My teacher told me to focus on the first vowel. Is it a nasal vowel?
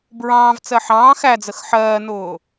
yes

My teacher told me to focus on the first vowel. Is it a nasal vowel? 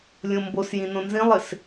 yes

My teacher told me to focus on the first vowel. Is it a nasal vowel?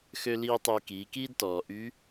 no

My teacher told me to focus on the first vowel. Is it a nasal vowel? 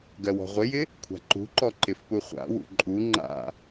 no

